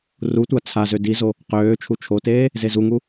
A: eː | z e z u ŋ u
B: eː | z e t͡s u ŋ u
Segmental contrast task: A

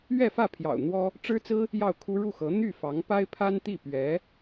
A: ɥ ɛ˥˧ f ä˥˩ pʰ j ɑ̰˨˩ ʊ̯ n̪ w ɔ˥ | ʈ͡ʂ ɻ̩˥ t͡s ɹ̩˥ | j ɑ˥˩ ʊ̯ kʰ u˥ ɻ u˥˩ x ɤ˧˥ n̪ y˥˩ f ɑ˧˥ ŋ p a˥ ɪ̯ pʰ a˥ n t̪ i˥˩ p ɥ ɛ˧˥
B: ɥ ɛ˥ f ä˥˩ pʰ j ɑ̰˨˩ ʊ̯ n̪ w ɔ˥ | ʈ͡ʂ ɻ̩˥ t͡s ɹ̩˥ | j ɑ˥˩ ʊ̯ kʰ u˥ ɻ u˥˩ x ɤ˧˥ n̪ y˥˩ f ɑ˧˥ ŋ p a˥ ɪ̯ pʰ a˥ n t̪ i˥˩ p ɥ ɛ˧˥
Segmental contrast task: A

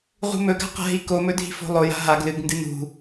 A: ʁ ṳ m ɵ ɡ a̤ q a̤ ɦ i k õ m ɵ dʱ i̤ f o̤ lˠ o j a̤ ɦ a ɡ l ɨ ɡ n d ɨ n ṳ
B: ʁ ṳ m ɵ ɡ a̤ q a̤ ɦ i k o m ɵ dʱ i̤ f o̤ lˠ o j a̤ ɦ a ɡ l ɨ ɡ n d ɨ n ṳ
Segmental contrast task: B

